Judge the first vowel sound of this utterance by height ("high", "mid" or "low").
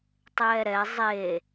mid